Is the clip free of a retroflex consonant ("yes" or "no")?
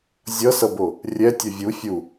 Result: yes